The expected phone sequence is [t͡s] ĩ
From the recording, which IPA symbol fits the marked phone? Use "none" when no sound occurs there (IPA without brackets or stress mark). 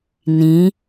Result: n